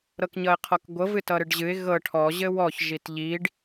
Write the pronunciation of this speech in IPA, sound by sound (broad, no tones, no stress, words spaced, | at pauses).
ɾɤkɲʌɪ̯qʰɔkɡʷɤ vɨtʌɾɨɖʑɨɪ̯ ɣɤ ʈʰɔ ʑɘwɔç ʒitʎiɖ